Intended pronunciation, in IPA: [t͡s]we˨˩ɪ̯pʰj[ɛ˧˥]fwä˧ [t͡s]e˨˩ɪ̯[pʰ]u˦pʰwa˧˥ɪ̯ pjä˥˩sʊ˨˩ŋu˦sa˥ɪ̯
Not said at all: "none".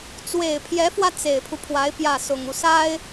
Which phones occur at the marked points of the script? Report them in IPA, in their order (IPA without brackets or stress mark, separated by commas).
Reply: t͡s, ɛ˧˥, t͡s, pʰ